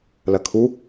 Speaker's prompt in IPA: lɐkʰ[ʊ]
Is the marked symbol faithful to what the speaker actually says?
no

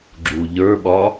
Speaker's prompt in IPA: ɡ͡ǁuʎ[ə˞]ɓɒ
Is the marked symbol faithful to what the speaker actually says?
yes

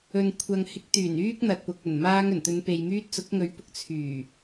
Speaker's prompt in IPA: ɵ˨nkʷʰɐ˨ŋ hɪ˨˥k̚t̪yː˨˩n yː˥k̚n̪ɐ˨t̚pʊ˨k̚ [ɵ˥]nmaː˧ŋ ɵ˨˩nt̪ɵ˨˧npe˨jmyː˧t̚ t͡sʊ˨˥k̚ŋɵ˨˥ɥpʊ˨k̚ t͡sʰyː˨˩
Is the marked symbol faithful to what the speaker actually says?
no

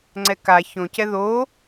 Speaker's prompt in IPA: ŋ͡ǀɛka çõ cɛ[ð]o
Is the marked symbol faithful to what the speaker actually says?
yes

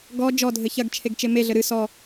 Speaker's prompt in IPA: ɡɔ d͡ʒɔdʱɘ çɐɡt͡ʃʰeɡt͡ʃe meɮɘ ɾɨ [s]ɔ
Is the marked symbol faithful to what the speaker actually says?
yes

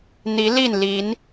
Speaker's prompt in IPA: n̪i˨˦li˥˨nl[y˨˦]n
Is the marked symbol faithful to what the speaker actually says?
no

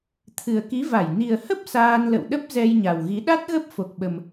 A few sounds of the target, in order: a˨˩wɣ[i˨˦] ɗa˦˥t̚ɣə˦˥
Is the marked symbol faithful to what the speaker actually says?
yes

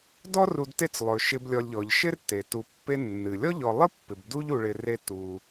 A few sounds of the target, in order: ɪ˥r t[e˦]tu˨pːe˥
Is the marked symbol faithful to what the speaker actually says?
no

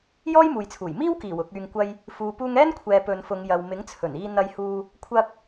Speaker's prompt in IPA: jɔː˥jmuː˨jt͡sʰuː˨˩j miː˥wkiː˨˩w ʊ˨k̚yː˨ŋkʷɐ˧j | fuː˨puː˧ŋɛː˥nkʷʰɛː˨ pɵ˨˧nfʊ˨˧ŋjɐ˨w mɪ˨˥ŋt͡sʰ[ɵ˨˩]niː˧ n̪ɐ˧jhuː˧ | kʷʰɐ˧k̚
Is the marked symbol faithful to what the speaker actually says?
yes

